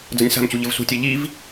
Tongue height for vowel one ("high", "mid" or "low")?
low